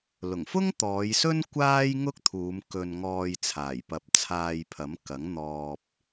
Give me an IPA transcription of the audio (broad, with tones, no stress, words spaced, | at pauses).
lʊ˨˩ŋfʊ˥ŋt̪ɔː˨˧jsɵ˥n kʷaː˥jŋʊ˥k̚t̪ʰuː˨˧m kɵ˧nŋɔː˧j t͡sʰaː˨˩jpɐ˨˥p̚t͡sʰaː˧jpʰɐ˨˥m kɐ˨˥ŋn̪ɔː˧p̚